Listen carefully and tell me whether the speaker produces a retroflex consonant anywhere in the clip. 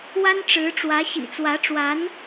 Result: yes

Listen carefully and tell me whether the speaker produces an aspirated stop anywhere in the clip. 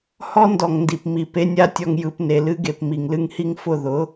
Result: no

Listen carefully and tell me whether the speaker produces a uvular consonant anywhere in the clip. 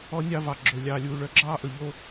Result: no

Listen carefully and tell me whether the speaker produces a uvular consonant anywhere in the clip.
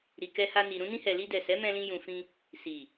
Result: no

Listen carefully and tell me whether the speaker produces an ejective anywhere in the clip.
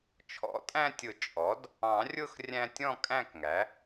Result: yes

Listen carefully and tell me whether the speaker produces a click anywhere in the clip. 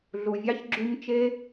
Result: yes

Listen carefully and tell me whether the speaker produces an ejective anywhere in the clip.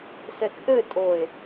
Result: yes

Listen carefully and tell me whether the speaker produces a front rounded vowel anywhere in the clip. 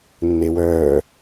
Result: yes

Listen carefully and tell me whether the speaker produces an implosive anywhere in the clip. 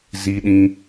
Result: yes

